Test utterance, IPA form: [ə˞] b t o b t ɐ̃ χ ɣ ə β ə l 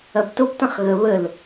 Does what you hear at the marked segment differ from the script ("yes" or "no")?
yes